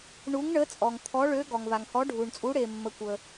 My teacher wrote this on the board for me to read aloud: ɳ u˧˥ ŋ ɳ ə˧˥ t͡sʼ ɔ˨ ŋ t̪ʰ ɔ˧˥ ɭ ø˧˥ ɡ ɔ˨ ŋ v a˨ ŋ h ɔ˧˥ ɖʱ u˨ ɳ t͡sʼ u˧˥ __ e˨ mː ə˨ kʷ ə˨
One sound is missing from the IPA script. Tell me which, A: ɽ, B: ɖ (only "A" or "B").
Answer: A